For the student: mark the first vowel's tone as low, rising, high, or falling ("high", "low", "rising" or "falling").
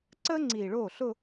high